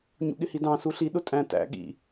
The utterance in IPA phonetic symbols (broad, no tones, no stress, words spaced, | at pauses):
ɲṵɠɪhidɑ̃ suɬi ɗʊtʼæ̃ tæ̰ ɠḭ